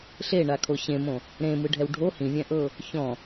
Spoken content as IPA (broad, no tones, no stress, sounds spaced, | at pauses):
ɬ e ɳ a kʰ o ɕ ẽ m õ | ɾ ẽ m ɯ ɖʱ ɛ w ɖʱ o h ĩ vʲ ɛ̃ ʔ ɤ | ç ɔ̃